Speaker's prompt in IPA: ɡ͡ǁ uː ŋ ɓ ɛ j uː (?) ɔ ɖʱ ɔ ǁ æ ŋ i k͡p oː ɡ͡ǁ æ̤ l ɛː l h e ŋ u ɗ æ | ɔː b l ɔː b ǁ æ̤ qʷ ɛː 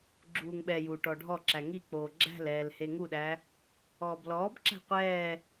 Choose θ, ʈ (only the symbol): ʈ